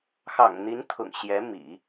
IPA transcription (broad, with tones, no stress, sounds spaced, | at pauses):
x ɑ̰˨˩ ŋ n̪ i˧˥ n t̪ʰ ʊ̰˨˩ ŋ ɕ j ɛ˧˥ m ḭ˨˩˦